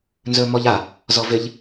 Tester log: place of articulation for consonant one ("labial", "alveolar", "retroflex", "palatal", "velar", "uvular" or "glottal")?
alveolar